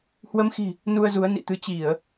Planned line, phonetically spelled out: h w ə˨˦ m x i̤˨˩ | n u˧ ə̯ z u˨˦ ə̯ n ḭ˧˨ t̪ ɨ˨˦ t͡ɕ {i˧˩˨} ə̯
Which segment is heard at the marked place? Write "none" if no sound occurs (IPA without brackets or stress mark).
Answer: i˧˩˨